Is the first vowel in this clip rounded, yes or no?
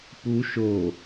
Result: yes